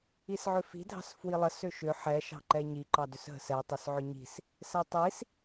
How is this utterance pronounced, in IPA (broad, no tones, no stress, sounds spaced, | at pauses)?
i s ʕ ʏ f i̤ dʱ ɑ̤ s f w i lˠ ə s ʏ ʃ ʏ ħ ɛ ʃ ɑ̤ ǃ ɛ ɲ i ǃ ɑ d ʏ s ɦ ə̤ s ɛ tˤ ʏ s ʕ ʏ ɲ i̤ s | s ɛ tˤ i s